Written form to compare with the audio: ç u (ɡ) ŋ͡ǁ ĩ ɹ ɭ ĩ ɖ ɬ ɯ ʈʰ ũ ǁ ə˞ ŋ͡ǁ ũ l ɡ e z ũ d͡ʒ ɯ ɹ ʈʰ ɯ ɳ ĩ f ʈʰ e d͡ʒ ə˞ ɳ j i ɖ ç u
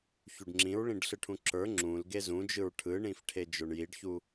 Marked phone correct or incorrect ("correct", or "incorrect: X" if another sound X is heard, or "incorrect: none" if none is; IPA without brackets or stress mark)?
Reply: incorrect: ɖ